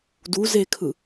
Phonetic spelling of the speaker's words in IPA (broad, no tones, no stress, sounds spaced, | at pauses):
d u z e kʰ ɯ